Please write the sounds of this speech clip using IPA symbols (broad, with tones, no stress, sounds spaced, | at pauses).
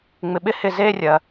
ŋ͡m ɪ˧ ɓ ɪ˦ h ɪ˦˨ z eː˦ rʲ ɜ˨